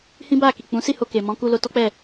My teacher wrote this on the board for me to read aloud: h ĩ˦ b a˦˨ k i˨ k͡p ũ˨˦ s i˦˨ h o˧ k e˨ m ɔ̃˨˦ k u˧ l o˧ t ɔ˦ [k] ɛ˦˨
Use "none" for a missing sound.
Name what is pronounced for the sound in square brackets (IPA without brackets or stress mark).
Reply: k͡p